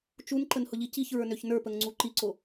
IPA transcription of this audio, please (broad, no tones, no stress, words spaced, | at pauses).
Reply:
t͡ʃunǃənhʊʎi ciçɹə˞nøç nə˞pəŋŋ͡ǀu ǃiǀo